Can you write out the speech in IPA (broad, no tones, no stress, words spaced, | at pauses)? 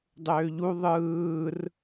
dˤøːʎu ðˤɯːr